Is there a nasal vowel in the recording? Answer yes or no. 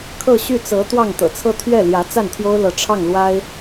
no